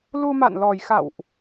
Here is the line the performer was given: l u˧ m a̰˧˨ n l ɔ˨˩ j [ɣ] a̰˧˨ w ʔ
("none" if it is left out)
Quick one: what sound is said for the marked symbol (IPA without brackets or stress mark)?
x